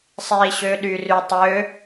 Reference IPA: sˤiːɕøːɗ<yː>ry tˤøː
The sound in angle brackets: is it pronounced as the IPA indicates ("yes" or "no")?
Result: yes